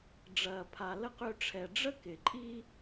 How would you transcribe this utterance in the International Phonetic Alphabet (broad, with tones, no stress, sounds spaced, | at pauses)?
ɖ͡ʐ ɐ˨ pʰ a˨ l ə˥ q ø˦ ʈ͡ʂʰ ɛ˨ ɖ͡ʐ ə˥ k ɪ˩ ǃʼ i˦